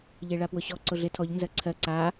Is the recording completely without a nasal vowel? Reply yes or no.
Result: yes